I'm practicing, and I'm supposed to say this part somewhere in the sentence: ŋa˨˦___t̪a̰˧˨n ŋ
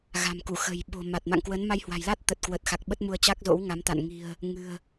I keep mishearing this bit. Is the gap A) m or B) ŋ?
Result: A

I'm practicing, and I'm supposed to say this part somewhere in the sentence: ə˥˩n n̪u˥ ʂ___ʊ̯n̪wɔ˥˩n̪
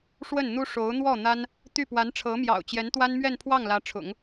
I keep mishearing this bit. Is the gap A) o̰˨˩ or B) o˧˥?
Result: B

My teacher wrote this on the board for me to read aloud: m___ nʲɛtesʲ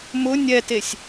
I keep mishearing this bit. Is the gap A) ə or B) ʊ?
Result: B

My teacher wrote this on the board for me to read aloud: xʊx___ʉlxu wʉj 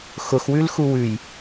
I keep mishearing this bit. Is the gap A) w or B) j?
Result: A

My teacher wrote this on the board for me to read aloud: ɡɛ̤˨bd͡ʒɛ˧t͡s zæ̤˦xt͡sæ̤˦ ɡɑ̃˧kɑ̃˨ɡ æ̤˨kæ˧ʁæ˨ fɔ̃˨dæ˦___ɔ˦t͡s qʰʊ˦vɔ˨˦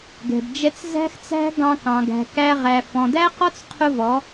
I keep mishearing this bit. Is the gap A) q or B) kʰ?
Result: A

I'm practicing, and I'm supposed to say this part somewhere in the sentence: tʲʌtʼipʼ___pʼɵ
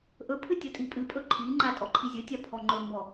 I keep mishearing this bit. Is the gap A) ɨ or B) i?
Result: A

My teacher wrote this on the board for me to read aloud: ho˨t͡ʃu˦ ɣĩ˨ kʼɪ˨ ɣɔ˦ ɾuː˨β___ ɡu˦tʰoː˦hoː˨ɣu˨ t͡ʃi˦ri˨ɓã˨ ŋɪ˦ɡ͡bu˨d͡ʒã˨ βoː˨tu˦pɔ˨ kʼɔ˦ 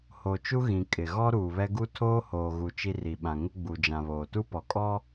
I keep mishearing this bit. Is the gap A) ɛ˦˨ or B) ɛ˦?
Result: B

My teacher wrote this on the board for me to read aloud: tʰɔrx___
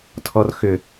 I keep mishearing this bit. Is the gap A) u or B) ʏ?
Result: B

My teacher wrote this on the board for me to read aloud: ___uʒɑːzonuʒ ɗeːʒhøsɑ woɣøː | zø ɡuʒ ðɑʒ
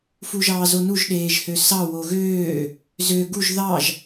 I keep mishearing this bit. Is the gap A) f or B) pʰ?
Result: A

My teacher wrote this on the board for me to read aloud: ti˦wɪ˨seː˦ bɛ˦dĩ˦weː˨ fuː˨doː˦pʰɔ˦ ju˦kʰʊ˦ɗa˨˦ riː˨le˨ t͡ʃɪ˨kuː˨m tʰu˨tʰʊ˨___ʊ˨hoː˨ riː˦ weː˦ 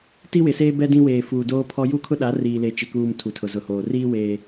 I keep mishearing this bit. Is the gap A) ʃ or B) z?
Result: B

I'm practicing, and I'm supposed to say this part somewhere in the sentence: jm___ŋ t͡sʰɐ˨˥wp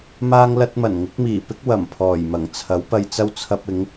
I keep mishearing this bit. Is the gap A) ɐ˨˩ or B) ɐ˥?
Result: A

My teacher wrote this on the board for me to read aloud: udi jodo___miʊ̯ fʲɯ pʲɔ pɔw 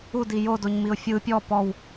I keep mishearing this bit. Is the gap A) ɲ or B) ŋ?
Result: A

